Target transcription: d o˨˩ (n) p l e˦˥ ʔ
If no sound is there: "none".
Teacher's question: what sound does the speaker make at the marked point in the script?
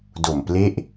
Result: m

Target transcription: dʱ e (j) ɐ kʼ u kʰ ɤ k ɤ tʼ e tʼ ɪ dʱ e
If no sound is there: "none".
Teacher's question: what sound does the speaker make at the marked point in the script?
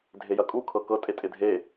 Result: j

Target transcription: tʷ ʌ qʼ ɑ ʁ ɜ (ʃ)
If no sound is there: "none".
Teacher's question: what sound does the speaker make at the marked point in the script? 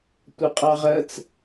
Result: t͡s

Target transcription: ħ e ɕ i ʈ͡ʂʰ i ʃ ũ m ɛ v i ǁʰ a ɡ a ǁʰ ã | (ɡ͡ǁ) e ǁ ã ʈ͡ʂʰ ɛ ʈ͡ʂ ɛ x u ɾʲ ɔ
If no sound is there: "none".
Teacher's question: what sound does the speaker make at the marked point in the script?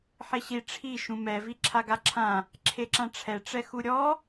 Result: ǁʰ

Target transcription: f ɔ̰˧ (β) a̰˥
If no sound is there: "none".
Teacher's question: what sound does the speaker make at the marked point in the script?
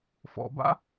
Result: b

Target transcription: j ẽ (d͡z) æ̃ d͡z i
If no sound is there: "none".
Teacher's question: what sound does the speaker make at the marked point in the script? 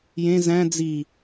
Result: z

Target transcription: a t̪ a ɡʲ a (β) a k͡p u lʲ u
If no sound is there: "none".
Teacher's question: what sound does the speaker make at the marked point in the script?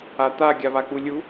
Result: β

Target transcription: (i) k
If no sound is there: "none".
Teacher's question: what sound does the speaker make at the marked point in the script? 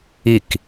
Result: i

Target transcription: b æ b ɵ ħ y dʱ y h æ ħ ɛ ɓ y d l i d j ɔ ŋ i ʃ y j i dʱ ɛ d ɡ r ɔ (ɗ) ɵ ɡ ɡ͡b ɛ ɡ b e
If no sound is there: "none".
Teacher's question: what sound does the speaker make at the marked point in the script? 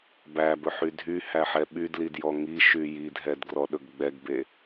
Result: ɗ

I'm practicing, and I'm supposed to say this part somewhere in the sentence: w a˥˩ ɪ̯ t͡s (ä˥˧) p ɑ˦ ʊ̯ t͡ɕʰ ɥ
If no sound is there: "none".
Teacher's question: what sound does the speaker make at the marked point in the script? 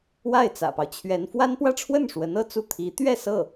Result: ä̰˨˩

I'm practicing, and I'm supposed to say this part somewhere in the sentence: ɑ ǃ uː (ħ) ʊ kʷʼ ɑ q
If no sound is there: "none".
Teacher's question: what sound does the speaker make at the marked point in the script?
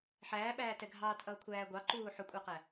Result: ħ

